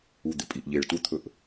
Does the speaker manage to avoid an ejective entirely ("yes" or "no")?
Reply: no